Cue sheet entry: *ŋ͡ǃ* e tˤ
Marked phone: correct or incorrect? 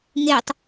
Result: incorrect